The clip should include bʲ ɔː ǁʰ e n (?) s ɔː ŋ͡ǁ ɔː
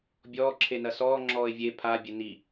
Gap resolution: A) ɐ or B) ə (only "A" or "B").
A